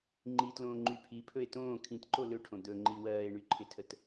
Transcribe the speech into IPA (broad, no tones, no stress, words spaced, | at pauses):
ŋ͡ǃitlõːŋ͡ǃy pʰipʰɵe̯ tõː kʰĩtǃo lɵʈʰõ d̪ɵŋ͡ǃi wɜːe̯ɳyǃʰɪtʰət